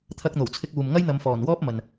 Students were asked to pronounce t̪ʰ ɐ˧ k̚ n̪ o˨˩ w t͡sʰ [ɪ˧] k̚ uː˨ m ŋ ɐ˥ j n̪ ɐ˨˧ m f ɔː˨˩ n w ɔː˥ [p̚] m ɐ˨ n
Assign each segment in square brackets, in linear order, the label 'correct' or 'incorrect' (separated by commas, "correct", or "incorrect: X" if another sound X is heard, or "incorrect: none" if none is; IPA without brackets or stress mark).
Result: correct, correct